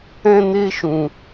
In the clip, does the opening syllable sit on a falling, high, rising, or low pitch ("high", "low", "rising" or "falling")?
high